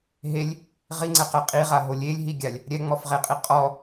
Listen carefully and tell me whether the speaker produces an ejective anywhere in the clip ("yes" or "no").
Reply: yes